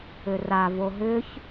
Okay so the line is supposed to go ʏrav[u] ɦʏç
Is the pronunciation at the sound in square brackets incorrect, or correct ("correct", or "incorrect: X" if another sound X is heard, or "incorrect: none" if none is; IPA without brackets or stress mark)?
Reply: incorrect: o